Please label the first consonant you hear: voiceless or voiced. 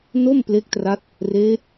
voiced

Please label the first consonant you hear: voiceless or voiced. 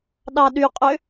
voiced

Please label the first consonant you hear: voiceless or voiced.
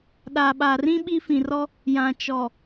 voiced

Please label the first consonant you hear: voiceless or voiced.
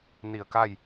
voiced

